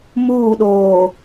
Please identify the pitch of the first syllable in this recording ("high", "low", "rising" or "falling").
falling